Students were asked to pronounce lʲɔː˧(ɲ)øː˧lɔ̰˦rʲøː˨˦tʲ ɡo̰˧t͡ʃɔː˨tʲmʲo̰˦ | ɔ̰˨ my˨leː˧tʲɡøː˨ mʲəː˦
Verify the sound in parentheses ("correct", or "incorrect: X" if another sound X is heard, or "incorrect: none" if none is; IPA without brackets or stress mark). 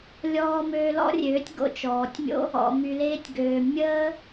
incorrect: m